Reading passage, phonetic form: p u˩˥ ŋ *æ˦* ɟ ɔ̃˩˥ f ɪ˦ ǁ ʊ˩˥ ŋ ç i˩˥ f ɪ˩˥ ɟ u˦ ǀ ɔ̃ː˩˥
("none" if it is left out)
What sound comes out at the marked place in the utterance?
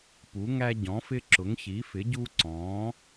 æ˦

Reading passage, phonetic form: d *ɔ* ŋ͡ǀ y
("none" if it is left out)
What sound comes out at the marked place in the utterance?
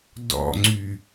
ɔ̰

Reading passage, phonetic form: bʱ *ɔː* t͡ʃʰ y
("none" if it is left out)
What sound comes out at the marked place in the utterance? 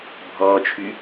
ɔː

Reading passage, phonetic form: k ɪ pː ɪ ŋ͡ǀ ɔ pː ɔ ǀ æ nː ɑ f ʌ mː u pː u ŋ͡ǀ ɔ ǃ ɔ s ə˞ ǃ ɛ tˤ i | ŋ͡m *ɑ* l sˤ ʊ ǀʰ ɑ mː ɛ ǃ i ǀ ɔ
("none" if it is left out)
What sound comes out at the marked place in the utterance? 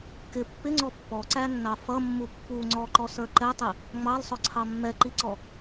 ɑ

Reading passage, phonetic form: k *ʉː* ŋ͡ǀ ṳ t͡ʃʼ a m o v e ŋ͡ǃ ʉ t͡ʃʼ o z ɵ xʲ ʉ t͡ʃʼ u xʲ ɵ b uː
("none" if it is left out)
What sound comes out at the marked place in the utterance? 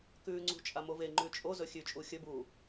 ʉː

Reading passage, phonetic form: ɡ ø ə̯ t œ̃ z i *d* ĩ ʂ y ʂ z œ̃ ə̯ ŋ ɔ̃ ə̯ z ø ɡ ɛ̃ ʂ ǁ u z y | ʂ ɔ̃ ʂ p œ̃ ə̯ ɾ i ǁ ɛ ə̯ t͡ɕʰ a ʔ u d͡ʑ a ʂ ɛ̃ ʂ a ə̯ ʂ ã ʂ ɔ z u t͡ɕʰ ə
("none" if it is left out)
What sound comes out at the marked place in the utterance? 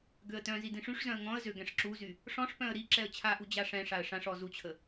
d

